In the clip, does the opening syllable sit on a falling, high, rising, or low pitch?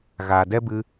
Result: low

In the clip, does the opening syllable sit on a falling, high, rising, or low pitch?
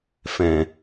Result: low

